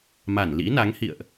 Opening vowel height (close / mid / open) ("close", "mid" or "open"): open